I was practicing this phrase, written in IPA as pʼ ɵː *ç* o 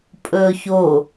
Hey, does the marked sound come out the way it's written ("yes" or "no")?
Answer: yes